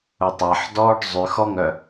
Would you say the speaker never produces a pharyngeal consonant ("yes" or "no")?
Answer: no